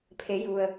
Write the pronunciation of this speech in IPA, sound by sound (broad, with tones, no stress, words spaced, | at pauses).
pʰe˩˧ju˩ə̯